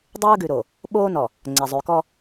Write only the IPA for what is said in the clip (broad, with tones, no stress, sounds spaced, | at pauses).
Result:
dˤ ɯː˦ ɡ ʉ˨ ɾ o˨ | ɓ oː˦ n ɔ˨ | ŋ͡ǀ ɛ˨ zˤ ʉ˨ k ɔ˦